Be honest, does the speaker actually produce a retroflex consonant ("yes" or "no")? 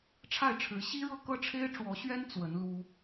yes